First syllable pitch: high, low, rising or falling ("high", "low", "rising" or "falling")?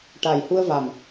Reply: low